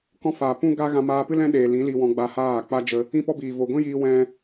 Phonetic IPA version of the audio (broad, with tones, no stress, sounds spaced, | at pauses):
k ɔ̃˦ f aː˨ p ũ˦ ɡ a˦ ɣ ã˧ m aː˧ p ɨ˦ l ɛ̃˦ ɗ eː˨ l ĩ˨˦ l i˧ w ɔ̃˧ ɡ͡b a˧ h aː˦˨ k͡p a˦ d͡ʒ ə˧ | ĩ˦ p ɔ˦ b iː˨ v o˨ ɡʷ ĩ˦ j iː˧ w ɛ̃˦